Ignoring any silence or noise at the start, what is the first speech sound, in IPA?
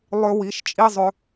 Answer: lˠ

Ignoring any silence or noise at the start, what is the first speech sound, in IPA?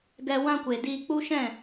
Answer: ɡ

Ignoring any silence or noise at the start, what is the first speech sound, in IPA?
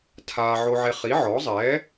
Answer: tʰ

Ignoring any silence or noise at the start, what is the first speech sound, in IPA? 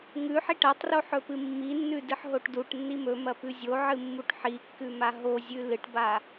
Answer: ŋ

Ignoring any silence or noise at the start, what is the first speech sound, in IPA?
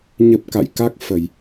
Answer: ɲ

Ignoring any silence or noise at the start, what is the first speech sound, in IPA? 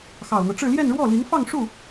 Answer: x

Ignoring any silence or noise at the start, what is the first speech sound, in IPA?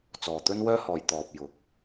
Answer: t͡s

